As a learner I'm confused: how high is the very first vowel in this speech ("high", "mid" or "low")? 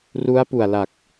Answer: high